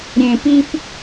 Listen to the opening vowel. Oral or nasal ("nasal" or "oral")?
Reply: nasal